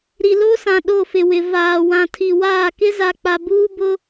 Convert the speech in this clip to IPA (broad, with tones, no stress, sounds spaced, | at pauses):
ɾ i˨ l o˦ s ã˨ ɗ o˦˨ f ɪ˨ w ɪ˨ v aː˨ w ã˨ tʰ i˨ w aː˦˨ k ɪ˦ z a˨ k͡p a˨ b uː˦ b ʊ˦